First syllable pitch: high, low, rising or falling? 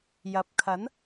low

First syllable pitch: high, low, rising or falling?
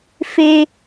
high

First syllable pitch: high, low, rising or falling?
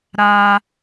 low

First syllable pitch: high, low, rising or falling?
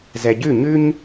low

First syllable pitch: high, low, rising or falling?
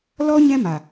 high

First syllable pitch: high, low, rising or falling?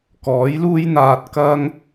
rising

